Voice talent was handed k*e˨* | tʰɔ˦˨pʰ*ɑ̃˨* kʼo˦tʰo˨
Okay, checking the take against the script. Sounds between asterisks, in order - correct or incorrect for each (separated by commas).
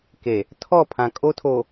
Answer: correct, incorrect